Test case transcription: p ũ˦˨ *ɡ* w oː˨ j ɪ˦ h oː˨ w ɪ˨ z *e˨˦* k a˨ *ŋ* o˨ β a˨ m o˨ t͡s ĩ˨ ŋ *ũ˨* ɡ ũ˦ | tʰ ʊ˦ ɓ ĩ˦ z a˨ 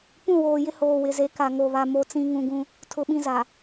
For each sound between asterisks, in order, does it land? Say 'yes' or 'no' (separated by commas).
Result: no, yes, yes, yes